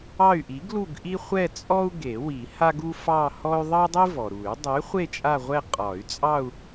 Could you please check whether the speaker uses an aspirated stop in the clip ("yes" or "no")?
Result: no